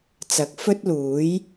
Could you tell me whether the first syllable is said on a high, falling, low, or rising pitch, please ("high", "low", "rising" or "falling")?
rising